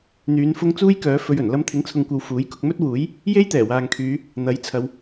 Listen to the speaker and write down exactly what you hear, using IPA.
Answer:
n̪yː˨˧n fʊ˧ŋ t͡suː˥jkœː˨˥ fɵ˧ɥɵ˨˩n lɐ˧mt̪ʰɪ˨˥ŋt͡sʰʊ˨ŋkʷɐ˨w fuː˨˥jkʊ˧k̚ mɵ˥t̚wuː˨˥j | je˥jt̪ɛː˨˩waː˨ŋkʰyː˨˧ | n̪ɐ˨˥jt͡sʰɐ˨˧w

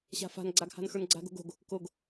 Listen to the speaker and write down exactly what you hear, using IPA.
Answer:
ɕa̤fa̤nɡ͡ǀaɡ ha̤nxə˞nɡ͡ǀa̤ɡo̤ɡ o̤ɡ | koɡ

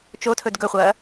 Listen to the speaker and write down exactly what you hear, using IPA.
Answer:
t͡ʃotʰɵd ɡɵχʷɐː

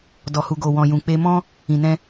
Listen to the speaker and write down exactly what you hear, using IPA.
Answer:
dɔ˨hu˨ɡo˨ wɔ̃˨jũ˨ k͡pe˧mɔ̃˦ | ĩ˨nɛ̃˧

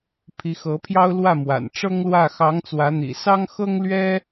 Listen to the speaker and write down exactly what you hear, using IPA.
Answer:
pʰi˧˥xɤ˧˥pʰjɑ˥ʊ̯ lwä˥˩mwa̰˨˩n ʈ͡ʂɤ˥ŋlwä˥˩ xɑ˧˥ŋt͡swä˧˥ n̪ḭ˨˩sɑ˥ŋ xɤ˥ŋlɥɛ˥

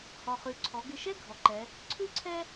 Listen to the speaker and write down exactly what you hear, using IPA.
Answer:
hɔ˩χʉ˩ ǀʰɔ˩˧ɡɪ˧ ʃɛ˥ ɡʱɔ˩ǃɛ˩˧ | ǀʰʉ˥ǀʰɛ˥

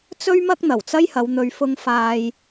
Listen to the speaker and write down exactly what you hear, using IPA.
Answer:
t͡sɵ˥ɥmɐ˥k̚ n̪ɐ˨˩wt͡sɐ˥jhɐ˨˧w n̪ɵ˨ɥfʊ˧ŋ faː˧j

